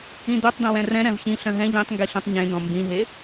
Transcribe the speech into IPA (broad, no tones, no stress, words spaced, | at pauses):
ĩd̪øtˤd̪ĩ wɛ̃rɛ̃ ɾɛ̃vçĩ ɬœ̃ɦɛ̃ ʎĩtˤŋɡi ɬũtˤɲẽd̪ɔ̃ mbĩɦe